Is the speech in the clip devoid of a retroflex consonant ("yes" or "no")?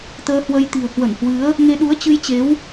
yes